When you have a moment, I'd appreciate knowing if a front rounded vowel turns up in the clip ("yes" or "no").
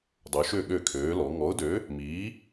yes